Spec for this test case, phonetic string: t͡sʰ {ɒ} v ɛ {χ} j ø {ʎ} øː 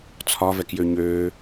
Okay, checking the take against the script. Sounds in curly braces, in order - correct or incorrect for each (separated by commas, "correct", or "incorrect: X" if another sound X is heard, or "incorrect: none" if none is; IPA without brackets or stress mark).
correct, incorrect: k, incorrect: ɲ